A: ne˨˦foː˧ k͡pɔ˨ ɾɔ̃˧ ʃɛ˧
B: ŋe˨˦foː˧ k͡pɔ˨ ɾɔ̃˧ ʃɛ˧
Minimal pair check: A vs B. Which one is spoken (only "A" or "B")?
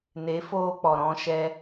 A